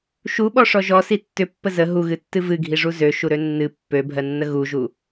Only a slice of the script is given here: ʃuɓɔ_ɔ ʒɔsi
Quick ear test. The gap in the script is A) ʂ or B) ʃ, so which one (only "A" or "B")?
A